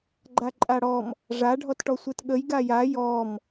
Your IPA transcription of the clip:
ɡ͡ǃaǃʼaɽɔm | ʐa ɖʱɔtʈɔsʷetɠəj ɡaja jɔm

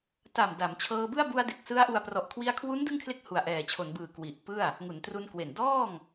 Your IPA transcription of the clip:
ta˨˩m da˩˦mt͡ɕʰɤː˧bɯ˥˩a̯ bu˧a̯de˨˩k̚ sɯ˦˥a̯ʔu˧a̯ prɔ˨˩ʔ kʰwi˧a̯kʰwu˦˥n dɯ˥˩ŋkʰle˥˩k̚ hu˨˩a̯ʔɛː˨˩t͡ɕʰo˩˦nbɯː˨˩ kwi˨˩ʔpɯ˥˩a̯ | ŋu˩˦ntru˧nkwe˨˩n dɔː˥˩ŋ

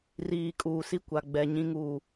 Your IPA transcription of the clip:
riː˨ kʼuː˨si˦ kʷa˨ɡ͡bɛ˨ ɲĩ˦ŋuː˦˨

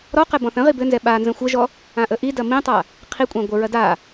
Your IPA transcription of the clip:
ɾɔqɛ bɔ̃θə̃ʁi bɘnzɛ ɓa nzə̃xʷəʒɔ | ãʔəʔidɐ mĩtˤa | qʰikʷʼã ɡʷəɹɐ da

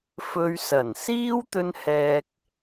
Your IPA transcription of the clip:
fɵ˧ɥsɐ˨˩n siː˥wt̪ɵ˧nhɛː˨k̚

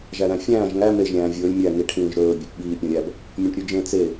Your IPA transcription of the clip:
ʒæɾæ̃fʲæ̃ːʒ ŋæ meʒ ɾʲæ̃ːvʲɵːlʲ mʲæ ŋiʈʰĩːʒ ɾɵː bʲepɓiː pʲɔ̃ɾʲæb | mʲɔ̃ʈɾʲʉd͡ʒẽ t͡se

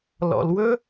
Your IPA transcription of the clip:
lɔ̰˩lwɵ˥

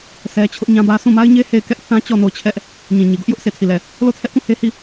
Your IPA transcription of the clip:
sʰɛ˦ t͡ɕʰʊ˦ʔɲã˦bä˦ sʰũ˦˨ma˦ɪ̯ɲe˦ he˦˨ɪ̯kɛ˦ʔ θã˦t͡ɕɔ˦˨ no˦˨ʊ̯t͡ɕʰɛ˦ʔ | ɲĩ˨ɲi˨ɡʊ˦ʔjʊ˦ʔ sʰe˦˨tʰi˦˨lɛ˦˨ | lo˦˨tʰɛ˦ʔkũ˦˨ he˦hi˦˨

